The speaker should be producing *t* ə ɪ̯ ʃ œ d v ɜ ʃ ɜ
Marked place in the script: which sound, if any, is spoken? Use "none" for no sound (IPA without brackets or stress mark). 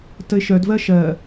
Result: t